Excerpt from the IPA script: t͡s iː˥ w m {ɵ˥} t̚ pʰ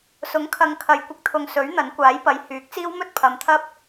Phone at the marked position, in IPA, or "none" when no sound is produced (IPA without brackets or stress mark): ɵ˥